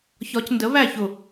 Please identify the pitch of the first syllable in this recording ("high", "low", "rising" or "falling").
rising